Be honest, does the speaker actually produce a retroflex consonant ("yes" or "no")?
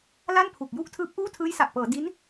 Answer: no